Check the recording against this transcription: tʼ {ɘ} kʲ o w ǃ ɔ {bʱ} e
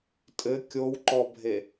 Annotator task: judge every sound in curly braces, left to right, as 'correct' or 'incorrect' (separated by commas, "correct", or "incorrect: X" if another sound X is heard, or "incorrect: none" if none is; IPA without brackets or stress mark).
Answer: correct, correct